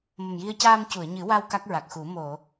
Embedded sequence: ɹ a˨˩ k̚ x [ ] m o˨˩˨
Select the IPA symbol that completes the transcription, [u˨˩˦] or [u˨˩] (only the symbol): u˨˩˦